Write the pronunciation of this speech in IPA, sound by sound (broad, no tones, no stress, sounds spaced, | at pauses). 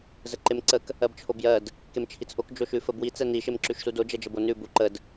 z ə ǃ e m ǀ ə k | ɜ b t͡ʃʰ o b j ɜ d | k e m t͡ʃʰ i t͡s ʔ o k d͡ʒ o ʃ ʉ f ə b w i t͡s ɛ n i ʃ e m ǁ ʉ ʃ s u d o d͡ʒ ɛ d͡ʒ ə b o n ʉ b u ǃ ə d